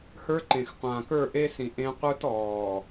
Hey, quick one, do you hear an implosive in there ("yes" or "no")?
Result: no